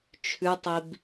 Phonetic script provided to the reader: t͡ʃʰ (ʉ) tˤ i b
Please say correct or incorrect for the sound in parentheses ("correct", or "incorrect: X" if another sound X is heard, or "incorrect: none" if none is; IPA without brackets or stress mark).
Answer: correct